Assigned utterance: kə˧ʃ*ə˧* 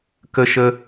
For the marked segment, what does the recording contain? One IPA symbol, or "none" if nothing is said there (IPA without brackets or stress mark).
ə˧